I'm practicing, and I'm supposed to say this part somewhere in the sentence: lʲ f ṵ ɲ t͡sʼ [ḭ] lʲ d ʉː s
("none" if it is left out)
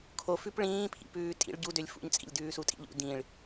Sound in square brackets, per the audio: ḭ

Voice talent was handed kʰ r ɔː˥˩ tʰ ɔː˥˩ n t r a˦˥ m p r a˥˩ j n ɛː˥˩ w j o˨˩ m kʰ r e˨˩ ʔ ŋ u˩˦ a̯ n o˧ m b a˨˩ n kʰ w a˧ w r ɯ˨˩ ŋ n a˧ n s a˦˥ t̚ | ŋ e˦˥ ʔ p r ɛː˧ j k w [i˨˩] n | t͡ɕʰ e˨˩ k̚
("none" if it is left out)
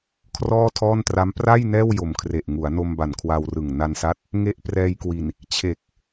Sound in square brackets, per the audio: i˨˩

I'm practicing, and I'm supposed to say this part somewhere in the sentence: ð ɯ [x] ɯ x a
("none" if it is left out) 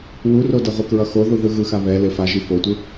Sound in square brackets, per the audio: ɣ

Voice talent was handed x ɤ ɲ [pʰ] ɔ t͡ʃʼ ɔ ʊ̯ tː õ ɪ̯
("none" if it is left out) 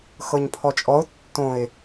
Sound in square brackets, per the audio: pʰ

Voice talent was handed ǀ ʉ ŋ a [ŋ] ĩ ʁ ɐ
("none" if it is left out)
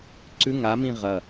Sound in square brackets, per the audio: m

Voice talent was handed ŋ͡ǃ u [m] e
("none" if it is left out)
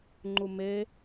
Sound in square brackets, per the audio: m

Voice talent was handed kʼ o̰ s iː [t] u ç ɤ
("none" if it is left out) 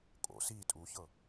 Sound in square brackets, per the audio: tʼ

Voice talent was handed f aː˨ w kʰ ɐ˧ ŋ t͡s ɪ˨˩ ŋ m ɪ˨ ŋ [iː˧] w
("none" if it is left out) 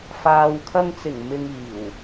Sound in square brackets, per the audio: iː˨˩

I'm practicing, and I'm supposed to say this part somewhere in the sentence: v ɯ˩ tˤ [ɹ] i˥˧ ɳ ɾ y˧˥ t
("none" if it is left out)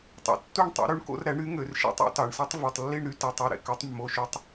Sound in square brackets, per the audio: lː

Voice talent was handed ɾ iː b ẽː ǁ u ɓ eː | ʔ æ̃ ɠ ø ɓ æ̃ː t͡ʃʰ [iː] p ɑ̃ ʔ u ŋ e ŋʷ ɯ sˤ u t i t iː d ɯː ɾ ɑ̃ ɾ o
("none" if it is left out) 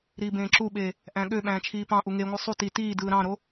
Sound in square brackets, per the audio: iː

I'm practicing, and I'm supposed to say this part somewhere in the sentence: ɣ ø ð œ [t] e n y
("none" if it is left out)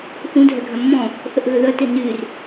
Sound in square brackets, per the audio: t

